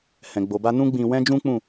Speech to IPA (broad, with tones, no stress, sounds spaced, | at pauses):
h ɛ̃˨ ɡ͡b o˨ b a˧ n ũ˦ ɡ͡b ĩ˧ w ɛ̃˦ d͡ʒ ũ˦ k͡p ũ˦˨